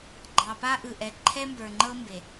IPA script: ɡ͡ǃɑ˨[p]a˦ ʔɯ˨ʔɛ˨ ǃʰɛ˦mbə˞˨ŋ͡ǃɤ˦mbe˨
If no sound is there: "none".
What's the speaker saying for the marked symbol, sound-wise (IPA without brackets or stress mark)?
p